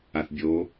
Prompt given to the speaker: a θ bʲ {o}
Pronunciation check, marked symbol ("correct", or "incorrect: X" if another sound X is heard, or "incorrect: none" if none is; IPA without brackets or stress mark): correct